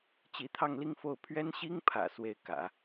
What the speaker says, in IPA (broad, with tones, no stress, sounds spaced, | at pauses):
t͡ɕ i˧˥ t̪ʰ ɑ˥˧ ŋ l i˥˧ ŋ f o˥˩ ʊ̯ pʰ ɥ ɛ˥ n ɕ i˥ ŋ pʰ ä̰˨˩ s w e˥˩ ɪ̯ k ä̰˨˩˦